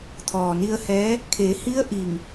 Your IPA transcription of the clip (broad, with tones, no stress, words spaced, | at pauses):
t̪ʰɔː˩ni˧ə̯hɛː˧˥ | kʰe˩˧hi˧˥ə̯ ʔi˧˩ŋ